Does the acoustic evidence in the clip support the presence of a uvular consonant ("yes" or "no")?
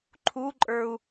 no